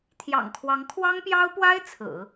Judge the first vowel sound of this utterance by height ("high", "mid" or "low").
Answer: low